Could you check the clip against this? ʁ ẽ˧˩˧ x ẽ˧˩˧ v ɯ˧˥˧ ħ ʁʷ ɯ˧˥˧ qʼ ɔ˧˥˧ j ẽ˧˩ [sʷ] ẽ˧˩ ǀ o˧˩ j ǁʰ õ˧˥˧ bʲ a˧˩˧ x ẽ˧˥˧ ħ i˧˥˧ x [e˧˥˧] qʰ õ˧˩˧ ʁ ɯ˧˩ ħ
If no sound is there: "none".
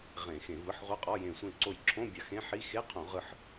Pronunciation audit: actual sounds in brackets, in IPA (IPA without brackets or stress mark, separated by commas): sʷ, e˧˥˧